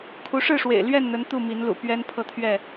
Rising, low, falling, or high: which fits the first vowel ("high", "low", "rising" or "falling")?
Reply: rising